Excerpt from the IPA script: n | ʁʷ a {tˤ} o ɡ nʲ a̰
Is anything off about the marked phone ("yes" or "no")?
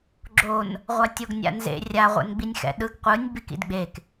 yes